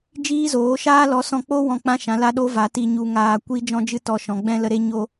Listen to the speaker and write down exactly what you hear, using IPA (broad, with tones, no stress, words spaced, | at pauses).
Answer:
d͡ʒiː˦zoː˨˦ʃaː˦ lɔ˨˦sɔ̃˧k͡po˦ wɔ̃˦˨k͡pã˦ʃã˨˦ la˦ɗo˦va˨˦ ti˧ ɲu˧ŋaː˧ kʷi˦ d͡ʒɔ̃˦d͡ʒɨ˦ tɔ˧ʃɔ̃˨ɡ͡bɛ̃˦ lə˦ɾe˦ ɲo˧